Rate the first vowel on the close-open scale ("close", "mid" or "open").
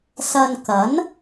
open